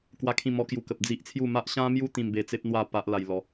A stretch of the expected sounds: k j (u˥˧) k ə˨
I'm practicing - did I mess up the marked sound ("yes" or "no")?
yes